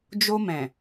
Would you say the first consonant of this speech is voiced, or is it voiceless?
voiced